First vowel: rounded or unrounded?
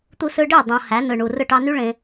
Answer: rounded